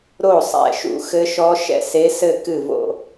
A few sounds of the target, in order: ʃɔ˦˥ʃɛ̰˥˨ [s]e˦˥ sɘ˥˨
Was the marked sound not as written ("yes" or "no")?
no